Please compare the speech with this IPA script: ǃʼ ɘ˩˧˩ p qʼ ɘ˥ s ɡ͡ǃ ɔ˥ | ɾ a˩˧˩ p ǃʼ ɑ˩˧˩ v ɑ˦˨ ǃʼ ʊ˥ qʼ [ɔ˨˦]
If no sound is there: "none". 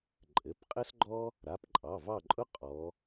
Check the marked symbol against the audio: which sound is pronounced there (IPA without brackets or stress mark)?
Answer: ɔ˨˦